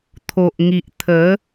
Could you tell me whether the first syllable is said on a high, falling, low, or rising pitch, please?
low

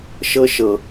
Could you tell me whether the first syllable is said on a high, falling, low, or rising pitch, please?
high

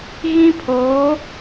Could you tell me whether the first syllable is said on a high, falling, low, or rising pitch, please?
high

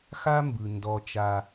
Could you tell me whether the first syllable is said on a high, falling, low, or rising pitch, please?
high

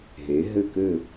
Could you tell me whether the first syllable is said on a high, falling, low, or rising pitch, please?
rising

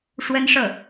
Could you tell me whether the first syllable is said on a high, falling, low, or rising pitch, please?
high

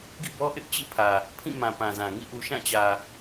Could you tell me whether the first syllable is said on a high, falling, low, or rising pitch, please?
falling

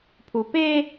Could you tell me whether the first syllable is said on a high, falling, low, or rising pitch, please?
low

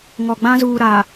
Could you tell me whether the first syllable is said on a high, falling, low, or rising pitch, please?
low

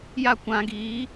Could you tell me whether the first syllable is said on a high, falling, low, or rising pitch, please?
falling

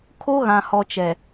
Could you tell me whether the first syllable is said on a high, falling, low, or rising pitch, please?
high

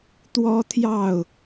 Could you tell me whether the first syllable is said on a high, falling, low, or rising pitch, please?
high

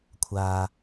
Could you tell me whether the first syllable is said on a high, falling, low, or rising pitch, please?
low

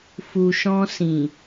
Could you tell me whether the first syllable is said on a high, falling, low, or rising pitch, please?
low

